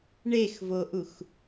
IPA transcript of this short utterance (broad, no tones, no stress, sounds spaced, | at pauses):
ɳ e x v o ʔ u x